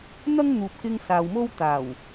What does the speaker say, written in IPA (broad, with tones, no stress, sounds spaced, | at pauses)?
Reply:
n̪ ɐ˥ ŋ n̪ uː˨ p̚ k ɪ˧ ŋ s aː˨ w m o˥ w t̪ aː˨˩ w